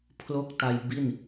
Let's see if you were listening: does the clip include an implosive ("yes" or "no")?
no